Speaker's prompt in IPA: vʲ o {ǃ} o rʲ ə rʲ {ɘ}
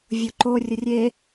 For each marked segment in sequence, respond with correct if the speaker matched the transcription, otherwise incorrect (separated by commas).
correct, incorrect